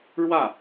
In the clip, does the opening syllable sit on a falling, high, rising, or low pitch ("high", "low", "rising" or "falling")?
falling